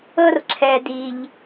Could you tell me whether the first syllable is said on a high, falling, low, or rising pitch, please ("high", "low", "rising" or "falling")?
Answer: high